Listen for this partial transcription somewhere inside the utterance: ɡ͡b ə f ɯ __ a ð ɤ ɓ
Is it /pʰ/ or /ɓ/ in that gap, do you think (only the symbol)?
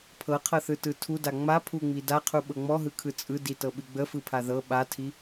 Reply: pʰ